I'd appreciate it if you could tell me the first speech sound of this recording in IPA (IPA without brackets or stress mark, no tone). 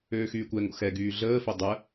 øː